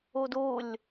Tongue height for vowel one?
high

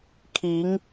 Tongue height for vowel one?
high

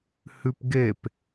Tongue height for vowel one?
high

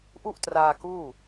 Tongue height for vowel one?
high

